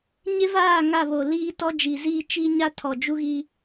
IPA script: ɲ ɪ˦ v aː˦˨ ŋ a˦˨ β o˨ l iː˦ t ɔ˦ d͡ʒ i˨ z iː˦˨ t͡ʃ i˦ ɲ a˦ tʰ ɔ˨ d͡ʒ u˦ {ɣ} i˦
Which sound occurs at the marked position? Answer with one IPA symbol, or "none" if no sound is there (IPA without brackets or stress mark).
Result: ɣ